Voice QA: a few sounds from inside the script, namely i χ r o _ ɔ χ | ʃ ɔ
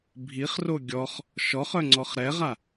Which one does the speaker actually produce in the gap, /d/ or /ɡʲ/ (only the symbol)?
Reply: ɡʲ